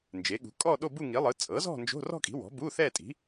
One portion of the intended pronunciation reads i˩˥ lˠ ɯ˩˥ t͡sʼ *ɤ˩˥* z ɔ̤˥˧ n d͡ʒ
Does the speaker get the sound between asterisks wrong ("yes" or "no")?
no